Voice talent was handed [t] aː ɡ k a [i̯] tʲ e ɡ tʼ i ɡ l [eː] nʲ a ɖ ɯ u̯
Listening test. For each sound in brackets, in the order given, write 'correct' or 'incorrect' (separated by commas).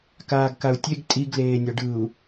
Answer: incorrect, incorrect, correct